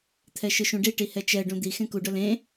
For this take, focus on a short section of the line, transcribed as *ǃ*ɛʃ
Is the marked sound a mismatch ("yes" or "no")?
yes